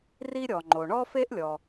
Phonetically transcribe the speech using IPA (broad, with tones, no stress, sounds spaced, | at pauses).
r i˥ ɾʲ ɔ˩ ŋ͡ǃ o˩ ɳ ɔ˥ f e˥ ʔ lʲ ɔ˩